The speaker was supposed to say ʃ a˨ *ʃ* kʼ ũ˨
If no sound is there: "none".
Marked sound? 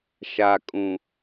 none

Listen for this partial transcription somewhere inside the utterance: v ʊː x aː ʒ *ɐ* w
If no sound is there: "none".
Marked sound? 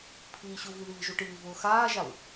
a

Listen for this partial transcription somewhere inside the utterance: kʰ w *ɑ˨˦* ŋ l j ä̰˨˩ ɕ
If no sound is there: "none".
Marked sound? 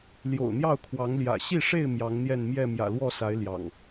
ɑ˨˦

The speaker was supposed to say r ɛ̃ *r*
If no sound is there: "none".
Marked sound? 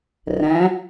none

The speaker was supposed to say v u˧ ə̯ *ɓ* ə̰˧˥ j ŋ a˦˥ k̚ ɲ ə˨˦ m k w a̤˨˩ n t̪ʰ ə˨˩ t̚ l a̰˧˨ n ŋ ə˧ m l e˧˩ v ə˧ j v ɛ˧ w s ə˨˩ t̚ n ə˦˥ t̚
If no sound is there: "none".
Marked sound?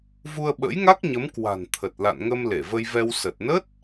ɓ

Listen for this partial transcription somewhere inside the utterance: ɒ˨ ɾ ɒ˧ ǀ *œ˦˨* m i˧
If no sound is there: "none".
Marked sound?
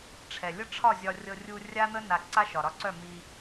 œ˦˨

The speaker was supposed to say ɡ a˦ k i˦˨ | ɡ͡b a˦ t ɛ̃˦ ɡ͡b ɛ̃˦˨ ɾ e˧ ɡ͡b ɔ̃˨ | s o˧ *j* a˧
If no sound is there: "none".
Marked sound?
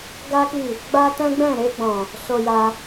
j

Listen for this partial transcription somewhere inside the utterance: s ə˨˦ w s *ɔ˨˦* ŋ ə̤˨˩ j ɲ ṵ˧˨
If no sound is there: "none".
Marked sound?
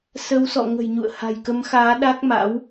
ɔ̰˧˨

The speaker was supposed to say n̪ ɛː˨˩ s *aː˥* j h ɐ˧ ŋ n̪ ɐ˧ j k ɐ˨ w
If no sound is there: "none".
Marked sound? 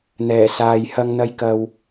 aː˨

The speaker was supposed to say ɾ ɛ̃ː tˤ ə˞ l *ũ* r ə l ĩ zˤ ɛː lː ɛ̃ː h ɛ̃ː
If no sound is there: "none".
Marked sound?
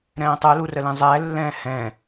u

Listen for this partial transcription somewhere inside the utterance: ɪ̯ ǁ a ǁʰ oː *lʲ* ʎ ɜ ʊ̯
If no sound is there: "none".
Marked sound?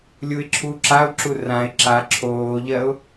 none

